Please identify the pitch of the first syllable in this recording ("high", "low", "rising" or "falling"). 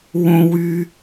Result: low